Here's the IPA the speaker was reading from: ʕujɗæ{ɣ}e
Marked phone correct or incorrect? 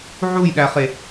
incorrect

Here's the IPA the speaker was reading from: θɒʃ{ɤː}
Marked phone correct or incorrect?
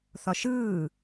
incorrect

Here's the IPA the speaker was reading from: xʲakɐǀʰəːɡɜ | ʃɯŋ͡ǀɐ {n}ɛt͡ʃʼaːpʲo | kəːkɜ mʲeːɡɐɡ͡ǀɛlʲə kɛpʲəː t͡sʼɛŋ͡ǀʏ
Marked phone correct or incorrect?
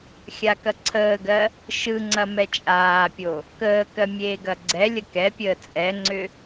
incorrect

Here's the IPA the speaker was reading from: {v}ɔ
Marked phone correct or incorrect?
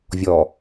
incorrect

